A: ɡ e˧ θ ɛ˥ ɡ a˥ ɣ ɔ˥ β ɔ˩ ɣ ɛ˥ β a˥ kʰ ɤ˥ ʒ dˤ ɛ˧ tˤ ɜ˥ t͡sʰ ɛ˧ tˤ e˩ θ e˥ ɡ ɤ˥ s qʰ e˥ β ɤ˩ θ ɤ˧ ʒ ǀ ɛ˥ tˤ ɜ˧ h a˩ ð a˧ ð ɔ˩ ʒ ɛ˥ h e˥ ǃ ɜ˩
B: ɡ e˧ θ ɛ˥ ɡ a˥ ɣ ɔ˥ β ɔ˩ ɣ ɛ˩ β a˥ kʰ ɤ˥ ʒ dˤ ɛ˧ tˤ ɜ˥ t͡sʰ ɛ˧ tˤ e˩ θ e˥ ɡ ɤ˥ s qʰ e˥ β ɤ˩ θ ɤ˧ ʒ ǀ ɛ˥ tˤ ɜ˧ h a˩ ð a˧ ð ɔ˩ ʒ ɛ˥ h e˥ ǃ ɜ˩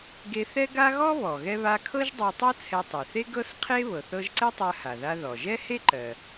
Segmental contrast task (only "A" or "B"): A